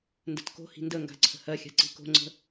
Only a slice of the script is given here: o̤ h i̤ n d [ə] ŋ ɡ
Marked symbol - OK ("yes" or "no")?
yes